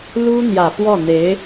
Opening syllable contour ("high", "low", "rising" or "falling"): high